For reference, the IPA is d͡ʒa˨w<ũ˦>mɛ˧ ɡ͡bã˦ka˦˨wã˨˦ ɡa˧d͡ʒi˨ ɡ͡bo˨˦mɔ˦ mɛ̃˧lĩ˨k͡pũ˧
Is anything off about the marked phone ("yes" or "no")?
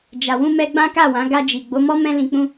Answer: yes